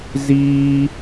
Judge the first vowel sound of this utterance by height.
high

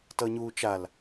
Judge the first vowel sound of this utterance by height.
mid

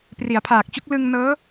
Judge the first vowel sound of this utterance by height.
high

